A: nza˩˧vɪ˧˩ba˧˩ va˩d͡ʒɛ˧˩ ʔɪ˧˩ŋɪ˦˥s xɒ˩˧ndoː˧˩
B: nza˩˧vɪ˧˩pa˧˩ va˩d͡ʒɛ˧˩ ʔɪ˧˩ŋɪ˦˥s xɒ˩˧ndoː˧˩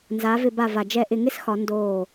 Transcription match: A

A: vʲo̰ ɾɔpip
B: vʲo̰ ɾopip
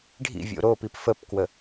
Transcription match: B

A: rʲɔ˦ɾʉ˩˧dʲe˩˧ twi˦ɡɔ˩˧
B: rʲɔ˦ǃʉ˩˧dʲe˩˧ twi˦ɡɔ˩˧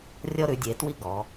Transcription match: A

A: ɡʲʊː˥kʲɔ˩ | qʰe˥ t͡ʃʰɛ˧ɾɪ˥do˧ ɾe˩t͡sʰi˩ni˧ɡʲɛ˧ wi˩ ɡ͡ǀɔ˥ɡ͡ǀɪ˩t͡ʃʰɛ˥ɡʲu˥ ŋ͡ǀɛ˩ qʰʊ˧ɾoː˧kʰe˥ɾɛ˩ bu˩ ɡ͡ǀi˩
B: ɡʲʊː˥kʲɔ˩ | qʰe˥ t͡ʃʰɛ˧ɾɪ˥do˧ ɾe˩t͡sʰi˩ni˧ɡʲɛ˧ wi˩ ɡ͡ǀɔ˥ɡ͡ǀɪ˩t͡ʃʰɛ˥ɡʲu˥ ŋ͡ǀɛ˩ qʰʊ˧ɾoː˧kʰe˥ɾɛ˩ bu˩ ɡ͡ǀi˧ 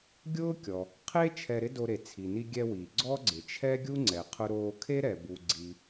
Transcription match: A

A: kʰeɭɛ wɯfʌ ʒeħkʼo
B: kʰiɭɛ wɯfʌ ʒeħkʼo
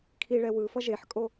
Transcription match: B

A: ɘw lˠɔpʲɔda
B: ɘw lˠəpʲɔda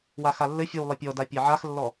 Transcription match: B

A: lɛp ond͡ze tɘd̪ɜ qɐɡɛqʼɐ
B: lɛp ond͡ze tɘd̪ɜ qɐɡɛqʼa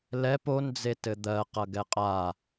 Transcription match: B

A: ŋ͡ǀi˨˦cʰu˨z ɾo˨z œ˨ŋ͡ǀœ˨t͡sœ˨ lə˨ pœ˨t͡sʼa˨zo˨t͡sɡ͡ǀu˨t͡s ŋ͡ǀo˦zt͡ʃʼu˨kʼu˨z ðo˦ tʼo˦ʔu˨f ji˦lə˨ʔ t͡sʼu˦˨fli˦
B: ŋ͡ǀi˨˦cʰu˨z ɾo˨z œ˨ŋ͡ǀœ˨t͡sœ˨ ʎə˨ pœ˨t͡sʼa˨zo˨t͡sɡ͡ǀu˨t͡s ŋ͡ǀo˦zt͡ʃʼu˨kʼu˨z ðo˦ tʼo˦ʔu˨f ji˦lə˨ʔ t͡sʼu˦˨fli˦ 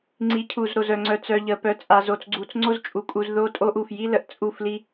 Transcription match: B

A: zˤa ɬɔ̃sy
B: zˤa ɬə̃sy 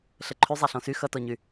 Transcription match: A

